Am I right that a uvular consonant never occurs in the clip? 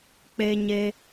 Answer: yes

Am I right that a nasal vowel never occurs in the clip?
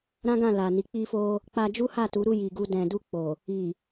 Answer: no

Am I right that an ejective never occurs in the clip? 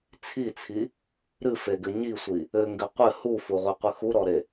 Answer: yes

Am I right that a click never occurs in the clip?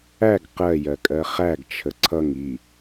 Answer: no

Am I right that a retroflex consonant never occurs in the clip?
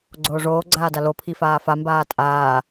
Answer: no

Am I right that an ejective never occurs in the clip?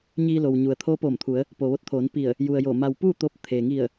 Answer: yes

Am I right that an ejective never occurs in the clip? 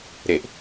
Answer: yes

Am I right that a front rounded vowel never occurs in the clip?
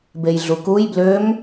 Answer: no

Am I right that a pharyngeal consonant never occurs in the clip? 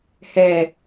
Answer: yes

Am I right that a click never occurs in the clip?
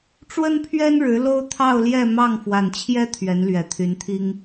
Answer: yes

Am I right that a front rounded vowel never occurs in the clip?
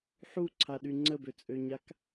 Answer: no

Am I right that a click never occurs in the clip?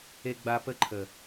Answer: no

